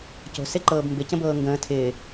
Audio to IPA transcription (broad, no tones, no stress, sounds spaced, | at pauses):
c o̤ s e ǃ ɤː b m b ɪ c ə̃ b ɤː ŋ ɡ ə̃ː tʰ ɪː